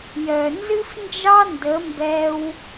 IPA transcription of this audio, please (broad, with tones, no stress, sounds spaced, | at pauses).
j œ˨ n z ɨ˦ f n d͡ʒ ɑ˦ n d ə˨˦ m b ɛ˦ w